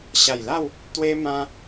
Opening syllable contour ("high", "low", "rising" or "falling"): low